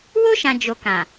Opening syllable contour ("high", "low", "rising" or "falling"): high